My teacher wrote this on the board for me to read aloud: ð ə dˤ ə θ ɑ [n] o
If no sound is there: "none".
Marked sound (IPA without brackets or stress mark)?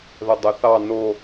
n